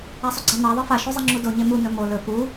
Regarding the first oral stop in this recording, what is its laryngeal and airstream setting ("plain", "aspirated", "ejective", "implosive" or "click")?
click